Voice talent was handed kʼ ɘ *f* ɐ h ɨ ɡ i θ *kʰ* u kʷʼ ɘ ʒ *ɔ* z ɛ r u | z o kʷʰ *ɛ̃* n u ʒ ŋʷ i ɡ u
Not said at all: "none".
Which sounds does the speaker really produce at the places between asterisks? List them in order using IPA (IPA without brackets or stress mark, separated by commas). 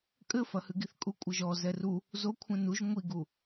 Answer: f, kʼ, ɔ, ɛ̃